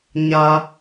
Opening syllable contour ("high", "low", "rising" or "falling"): high